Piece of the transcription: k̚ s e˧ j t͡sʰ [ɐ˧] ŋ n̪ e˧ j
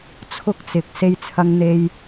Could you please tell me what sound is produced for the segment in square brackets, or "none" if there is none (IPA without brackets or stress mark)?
ɐ˧